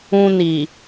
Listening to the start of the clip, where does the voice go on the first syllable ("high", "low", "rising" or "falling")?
high